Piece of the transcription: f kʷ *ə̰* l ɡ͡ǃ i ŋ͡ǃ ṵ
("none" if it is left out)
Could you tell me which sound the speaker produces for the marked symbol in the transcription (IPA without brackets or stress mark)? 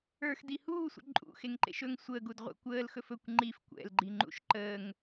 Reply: ɛ̰